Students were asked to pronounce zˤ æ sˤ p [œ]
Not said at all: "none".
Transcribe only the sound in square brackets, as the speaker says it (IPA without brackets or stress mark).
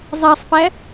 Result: æ